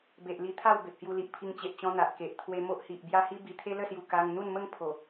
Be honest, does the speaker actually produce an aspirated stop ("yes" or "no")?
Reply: yes